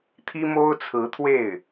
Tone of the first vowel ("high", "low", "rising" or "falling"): high